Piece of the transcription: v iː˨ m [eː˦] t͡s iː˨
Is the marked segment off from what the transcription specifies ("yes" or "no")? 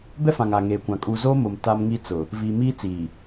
yes